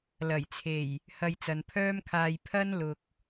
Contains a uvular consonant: no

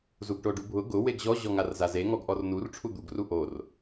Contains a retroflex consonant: yes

